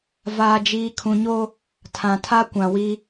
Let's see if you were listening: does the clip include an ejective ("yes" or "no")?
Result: no